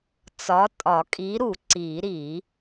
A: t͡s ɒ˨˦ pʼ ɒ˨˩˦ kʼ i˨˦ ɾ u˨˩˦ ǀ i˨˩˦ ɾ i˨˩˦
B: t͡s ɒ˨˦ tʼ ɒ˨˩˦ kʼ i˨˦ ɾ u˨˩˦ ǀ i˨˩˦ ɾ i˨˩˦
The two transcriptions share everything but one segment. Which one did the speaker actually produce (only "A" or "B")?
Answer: B